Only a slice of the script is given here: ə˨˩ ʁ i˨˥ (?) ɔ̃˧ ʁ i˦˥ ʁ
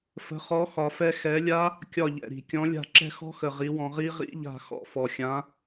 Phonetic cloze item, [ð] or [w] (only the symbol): w